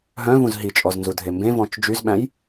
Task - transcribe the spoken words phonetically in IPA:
ɦœ̃vũz ɦit͡ʃʼɔznzudʱe mbẽvɔ̃t͡ʃ d͡ʒyzɓæ̃j

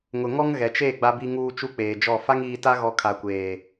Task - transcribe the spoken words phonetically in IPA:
ŋʊ˨ŋɔ˦ŋ ɣɛ˨t͡ʃe˦˨ ɡ͡ba˨bi˨ŋuː˨ t͡ʃu˦k͡peː˨d͡ʒɔ˦˨ fa˦ŋiː˨ta˦ɣɔ˨ kʰa˨kʷeː˨

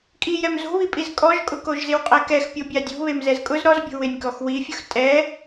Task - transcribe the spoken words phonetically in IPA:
kʼijɛm zo̤βipʼiz kʼɔʒkʼʊkoʒ zɪwqʼɛkɛxpʲo bʲadʲo̤ βemzɛzkʼʊz ɾɔzbʲo̤ wɪnʲkɔxwifʲʊx tʼɛ

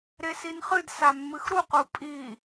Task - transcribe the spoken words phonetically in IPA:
ɾesinχɨd samːɨxɾuq upʼi

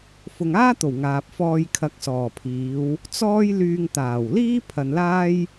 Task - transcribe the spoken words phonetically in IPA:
fʊ˨ŋaː˥t̪o˨˩w ŋaː˨p̚fɔː˧j kʰɐ˨˥k̚sɔː˨˩pʰiː˨˧w | t͡sɔː˥j lyː˧ŋt̪aː˨˩wliː˥ pʰɐ˨nlaː˥j

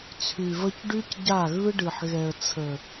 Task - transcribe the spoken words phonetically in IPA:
t͡sʰy˨və˦c ɖy˦cɟa˦˨ɣɯ˦ɖɯ˨ħ ɣɛ˨ə̯t͡sʰə˨

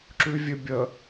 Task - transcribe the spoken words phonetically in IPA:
ǁʉvʲɘbʲə

